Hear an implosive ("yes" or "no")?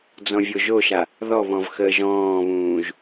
no